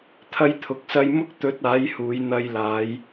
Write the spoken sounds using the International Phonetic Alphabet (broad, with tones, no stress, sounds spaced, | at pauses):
t̪ʰ ɐ˧ j t̪ʰ ʊ˨ k̚ s ɐ˧ j m ʊ˥ k̚ t̪ ɵ˨˥ t̚ aː˨˥ j h uː˨˧ j n̪ ɐ˧ j l aː˨˧ j